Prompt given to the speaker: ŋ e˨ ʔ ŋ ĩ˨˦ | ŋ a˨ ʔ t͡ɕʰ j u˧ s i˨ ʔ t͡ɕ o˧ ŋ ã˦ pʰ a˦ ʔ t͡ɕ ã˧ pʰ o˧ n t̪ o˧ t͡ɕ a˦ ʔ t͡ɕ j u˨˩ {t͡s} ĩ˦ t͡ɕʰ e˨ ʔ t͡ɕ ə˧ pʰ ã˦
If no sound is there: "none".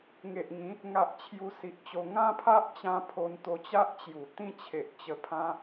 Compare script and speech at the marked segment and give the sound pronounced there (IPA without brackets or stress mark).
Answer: t̪